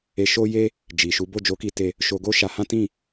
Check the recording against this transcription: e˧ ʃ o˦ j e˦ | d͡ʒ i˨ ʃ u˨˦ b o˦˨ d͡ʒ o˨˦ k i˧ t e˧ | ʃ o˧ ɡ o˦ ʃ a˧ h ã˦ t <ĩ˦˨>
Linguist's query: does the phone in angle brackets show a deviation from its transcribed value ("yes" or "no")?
no